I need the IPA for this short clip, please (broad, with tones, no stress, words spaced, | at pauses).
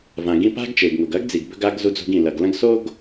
vã˩ɡĩ˧ pa̤˥ɡt͡ʃe˩ɡŋo˩ɡ ɐ˥ɡd͡zi˩ɡ bɵ˧ɡa˧ɡ zu˧d͡zo̤˧ɡĩ˩lɐ˩ɡ lɐ̃˥ɡ so˥ɡ